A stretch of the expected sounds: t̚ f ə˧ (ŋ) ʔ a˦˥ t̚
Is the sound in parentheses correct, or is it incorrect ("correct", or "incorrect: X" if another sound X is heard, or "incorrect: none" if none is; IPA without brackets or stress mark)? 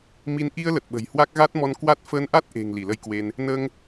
incorrect: n